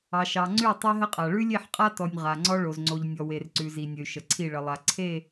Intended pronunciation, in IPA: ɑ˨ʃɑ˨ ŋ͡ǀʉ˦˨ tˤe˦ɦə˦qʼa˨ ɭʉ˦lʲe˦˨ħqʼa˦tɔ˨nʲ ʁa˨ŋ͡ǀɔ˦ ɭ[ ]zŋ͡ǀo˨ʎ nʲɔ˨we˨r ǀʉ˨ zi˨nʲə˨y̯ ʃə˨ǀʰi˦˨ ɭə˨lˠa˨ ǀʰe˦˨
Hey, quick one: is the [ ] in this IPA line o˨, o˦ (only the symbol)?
o˨